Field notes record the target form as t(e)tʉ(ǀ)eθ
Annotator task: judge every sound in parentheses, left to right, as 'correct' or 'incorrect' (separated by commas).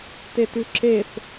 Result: correct, incorrect